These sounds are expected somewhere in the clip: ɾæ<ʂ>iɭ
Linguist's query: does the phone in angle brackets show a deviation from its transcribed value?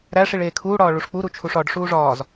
no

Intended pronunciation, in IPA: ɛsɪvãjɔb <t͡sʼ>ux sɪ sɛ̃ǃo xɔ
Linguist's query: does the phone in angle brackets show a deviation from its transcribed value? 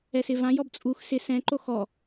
no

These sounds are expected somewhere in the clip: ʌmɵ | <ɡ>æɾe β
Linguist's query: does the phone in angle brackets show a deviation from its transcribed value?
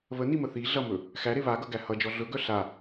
yes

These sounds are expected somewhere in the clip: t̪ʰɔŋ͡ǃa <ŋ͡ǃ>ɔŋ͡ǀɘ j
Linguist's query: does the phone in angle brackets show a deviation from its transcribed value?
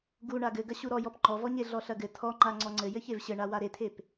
yes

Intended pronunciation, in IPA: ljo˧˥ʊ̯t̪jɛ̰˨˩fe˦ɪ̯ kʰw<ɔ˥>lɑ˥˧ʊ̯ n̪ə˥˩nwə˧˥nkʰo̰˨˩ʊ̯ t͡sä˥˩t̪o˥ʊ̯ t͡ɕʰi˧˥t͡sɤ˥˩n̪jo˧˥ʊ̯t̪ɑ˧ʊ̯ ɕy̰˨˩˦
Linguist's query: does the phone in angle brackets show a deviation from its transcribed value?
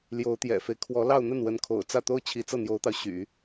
yes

